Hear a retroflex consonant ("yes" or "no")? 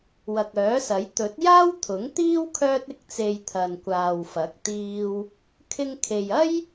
no